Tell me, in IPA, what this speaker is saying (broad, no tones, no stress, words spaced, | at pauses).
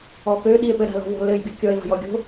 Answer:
ɔkø ɗie̯pɘ ɾa̤lɔ̤vɔ̤lɘj ɡʲukʲɔe̯ va̤jɔɡʲo̤